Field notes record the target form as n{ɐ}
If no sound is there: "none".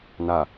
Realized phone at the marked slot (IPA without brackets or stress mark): a